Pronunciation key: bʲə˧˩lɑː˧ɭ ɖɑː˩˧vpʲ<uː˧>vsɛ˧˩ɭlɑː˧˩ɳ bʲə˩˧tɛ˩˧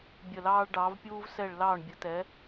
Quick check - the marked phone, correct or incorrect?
correct